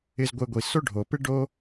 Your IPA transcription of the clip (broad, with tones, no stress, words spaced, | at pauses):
ɪ˧zɡʷe˧ɡʷi˩ so˥ɖʱo˩pɪ˥ ɖo˥